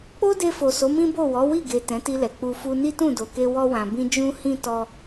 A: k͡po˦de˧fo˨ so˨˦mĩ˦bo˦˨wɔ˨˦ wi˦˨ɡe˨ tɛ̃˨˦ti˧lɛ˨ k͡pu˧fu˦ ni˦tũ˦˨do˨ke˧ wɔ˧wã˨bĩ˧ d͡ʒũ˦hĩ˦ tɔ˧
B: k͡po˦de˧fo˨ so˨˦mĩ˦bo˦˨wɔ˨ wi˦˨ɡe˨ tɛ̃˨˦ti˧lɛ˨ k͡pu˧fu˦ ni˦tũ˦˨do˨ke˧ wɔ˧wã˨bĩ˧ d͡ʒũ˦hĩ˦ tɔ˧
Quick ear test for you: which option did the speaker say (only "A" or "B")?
A